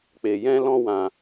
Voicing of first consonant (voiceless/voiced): voiceless